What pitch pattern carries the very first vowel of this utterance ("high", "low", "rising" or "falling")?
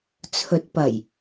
rising